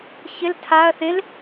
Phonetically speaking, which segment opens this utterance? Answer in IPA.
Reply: ç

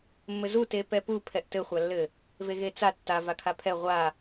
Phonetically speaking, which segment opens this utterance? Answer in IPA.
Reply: mː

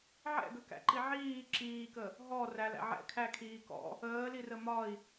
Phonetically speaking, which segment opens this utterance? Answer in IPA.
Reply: ʕ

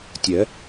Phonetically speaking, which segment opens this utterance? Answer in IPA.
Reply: tʲ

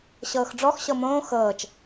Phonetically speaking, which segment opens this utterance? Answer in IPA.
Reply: ɕ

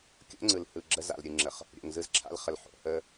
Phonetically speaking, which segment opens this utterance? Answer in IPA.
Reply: kʲ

